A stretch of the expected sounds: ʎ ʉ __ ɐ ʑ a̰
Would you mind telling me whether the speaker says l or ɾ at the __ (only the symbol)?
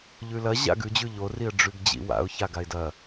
l